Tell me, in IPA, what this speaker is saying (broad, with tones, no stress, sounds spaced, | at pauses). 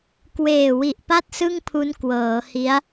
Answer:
k w eː˨˩ w i˨˩ ʔ p a˥˩ t̚ s ɯ˥˩ ŋ pʰ u˦˥ n k w ɤː˩˦ h i˦˥ a̯